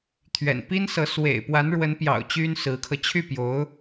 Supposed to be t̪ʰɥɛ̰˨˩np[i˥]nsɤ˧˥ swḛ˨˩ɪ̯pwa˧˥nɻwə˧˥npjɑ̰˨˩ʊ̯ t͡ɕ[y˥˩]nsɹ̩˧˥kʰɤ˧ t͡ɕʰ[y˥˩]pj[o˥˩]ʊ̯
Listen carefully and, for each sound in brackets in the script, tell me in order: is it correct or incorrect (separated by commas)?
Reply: correct, incorrect, correct, incorrect